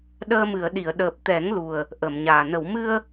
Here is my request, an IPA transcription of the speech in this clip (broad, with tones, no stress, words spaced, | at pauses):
ɗəː˧mɨ˨˩˨ə̯ɗi˨˩˨ə̯ ɗəː˨˩p̚t̪ɛ˨˩˦ŋlu˨˩ə̯ | ʔəː˨˩˨mɲaː˨˩ nə˨˩˨wmɨ˧ə̯